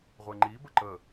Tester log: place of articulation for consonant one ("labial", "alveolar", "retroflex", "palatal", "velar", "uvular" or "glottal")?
uvular